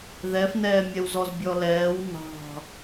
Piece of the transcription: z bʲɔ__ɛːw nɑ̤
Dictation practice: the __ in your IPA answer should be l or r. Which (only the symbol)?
l